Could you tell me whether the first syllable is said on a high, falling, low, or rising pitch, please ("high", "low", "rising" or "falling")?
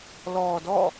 low